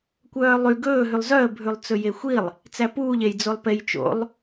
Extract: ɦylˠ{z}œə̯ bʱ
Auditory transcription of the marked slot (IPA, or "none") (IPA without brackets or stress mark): z